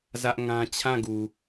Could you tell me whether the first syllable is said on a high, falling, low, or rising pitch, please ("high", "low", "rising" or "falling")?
high